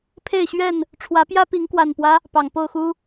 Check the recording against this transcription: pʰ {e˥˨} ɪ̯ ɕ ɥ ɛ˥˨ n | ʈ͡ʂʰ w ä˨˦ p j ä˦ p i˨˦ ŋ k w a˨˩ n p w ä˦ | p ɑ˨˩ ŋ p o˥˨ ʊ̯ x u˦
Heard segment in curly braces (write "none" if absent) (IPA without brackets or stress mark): e˥˨